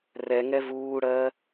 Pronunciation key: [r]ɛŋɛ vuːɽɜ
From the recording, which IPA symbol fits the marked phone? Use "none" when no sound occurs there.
r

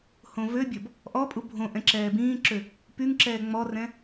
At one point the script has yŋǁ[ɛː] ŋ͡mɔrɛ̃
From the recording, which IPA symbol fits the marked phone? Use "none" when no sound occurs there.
ɛː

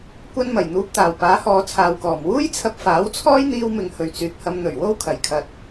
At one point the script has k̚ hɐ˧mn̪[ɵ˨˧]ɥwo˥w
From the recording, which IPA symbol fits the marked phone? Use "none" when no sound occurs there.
ɵ˨˩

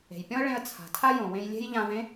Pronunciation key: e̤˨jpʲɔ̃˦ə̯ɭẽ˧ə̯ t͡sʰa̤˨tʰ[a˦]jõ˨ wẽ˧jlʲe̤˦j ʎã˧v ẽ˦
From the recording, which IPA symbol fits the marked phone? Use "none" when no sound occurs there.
a˦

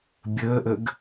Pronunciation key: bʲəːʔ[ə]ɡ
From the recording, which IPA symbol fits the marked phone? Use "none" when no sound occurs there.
ə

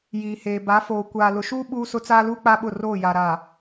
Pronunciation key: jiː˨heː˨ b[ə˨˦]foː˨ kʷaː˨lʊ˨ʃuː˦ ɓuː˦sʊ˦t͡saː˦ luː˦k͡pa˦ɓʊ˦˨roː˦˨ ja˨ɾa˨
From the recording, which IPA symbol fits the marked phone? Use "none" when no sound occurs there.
a˨˦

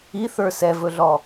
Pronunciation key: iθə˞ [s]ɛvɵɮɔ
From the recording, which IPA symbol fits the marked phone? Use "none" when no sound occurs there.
s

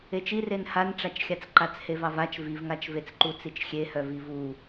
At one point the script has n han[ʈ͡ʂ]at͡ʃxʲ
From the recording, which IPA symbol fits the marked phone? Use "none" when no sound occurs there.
ʈ͡ʂ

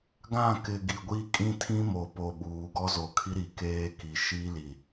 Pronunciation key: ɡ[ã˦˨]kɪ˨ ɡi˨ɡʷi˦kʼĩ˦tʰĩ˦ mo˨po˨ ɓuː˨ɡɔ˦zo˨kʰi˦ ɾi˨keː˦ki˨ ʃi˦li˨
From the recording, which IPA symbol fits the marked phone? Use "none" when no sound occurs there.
ã˦˨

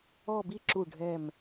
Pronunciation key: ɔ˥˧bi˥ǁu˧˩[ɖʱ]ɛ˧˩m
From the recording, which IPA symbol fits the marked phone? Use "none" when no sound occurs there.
ɖʱ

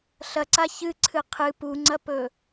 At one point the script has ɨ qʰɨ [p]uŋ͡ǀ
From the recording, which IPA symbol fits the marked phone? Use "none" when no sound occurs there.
p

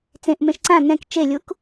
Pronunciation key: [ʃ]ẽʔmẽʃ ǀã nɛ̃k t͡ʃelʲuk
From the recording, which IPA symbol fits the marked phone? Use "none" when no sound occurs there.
t͡s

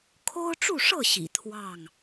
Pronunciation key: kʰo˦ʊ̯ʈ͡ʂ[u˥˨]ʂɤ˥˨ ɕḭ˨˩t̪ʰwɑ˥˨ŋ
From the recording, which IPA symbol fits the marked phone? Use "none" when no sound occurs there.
u˥˨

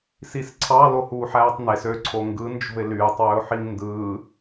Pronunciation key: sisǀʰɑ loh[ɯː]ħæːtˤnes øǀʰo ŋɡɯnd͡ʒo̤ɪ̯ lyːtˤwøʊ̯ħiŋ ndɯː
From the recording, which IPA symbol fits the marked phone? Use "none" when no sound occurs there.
uː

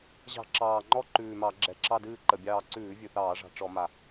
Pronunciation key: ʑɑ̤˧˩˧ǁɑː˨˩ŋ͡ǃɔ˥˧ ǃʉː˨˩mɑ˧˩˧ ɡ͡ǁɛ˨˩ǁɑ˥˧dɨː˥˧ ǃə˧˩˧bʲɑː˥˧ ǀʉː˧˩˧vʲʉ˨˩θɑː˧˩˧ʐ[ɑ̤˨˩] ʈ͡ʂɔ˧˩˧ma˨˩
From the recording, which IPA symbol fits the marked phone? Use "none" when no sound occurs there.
ɑ̤˨˩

